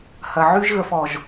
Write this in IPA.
h ɐ˨ ʕ y˦ ʒ ɣ ə˨ f ɔ˨ ʒ

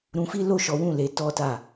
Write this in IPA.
ɾ ũ˧ f i˦ l o˦˨ ʃ ɔ˨˦ w ũ˦˨ l e˨˦ t ɔ˦ t a˦˨

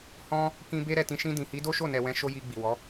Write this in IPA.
h ɔ̃˧ | k ĩ˧ b e˦ ɾ ɛ˦˨ t ĩ˧ ʃ ĩ˧ d ĩ˨ h i˨˦ d o˦ ʃ o˦˨ n ɛ˨ w ɛ̃˨˦ ʃ o˧ j i˧ ɡ͡b i˨ w ɔ˨˦

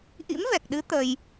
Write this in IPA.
ʔ ḭ˧˥ m v ɛ˨˩ k̚ ɗ ɨ˨˦ t̪ ə˧ j

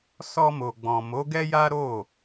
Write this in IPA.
s ɔ˧ m o˨ ɡ͡b ɔ̃˨ m o˨˦ ɡ ɛ˦ j a˦ ɾ o˦˨

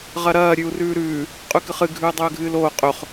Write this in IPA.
ʁ ɐ ɾ ɐː ɾʲ ʉ u̯ r ʉː ɾ ʉː | qʼ ʉ k ɨ χ ɨ ɡʱ ʉː dˤ ɵː ɡʱ ɨː l oː qʼ ɵ χ

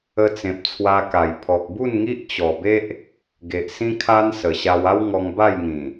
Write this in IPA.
ə˧ t͡s ẽ˨ p̚ t͡sʰ w a˧ k a˨˩ j pʰ ɔ˨ k̚ b u˥˧ n ŋ i˦ ʔ t͡ɕ ɔ˨˩ b e˦ ʔ | ɡ e˨ ʔ s ĩ˦ kʰ a˦ n s ə˨˩ ɕ a˧ w a˦ w ŋ ɔ˧ ŋ b a˥˧ j ŋ ĩ˨˩

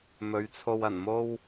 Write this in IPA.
m ɵ˨˧ ɥ t͡sʰ o˧ w ɐ˨˩ n m o˥ w

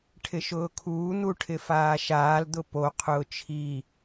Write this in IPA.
ʈʰ ɪ ʃ ʊː kʰ uː n̪ u ʈʰ ɪ f aː ʃ aː l d̪ ʊ p o qʰ ʊː t͡ʃʰ i

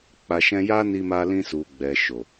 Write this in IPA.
k͡p a˨ ʃ ɛ̃˧ j a˦ n i˧ m a˧ l ĩ˧ s u˨ ɡ͡b ɛ˨ ʃ o˨

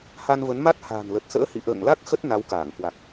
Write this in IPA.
h a˧ n v ə˨˦ n m a˦˥ t̚ h a̤ː˨˩ n l ə˨˩ t̚ s ə̰ː˧˥ h ḭ˧˨ ʔ ə̰ː˧˨ ŋ l a˦˥ k̚ x ə˦˥ t̚ n a˨˦ w k aː˧˩ ŋ k w a˨˩ k̚

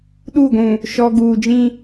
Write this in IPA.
ɗ u˦˨ ɡʷ ũ˨ | ʃ ɔ˨ ɡ uː˨ d͡ʒ ĩ˦

